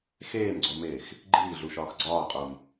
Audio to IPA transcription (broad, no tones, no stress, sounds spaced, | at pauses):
x eː m ɡ͡ǀ o m eː x | ɡ͡ǃ iː ɮ u ʃ ɒː x ɡ͡ǀ ɒː qʼ o m